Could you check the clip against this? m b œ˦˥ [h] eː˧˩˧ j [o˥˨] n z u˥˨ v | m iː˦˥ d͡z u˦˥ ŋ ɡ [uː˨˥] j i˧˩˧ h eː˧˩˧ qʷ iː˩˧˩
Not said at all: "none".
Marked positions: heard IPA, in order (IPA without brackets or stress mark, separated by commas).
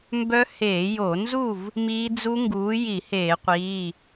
h, o˧˩˧, uː˨˥